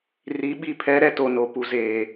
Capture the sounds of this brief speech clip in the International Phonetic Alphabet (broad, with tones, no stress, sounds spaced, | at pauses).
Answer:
r i˨˦ ɓ i˦˨ pʰ ɛ˦ ɾ ɛ˦ t o˨ n o˨ p u˨ z eː˨